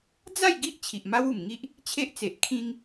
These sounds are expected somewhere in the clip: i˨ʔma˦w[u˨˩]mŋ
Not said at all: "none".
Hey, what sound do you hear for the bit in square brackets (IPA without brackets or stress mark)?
u˨˩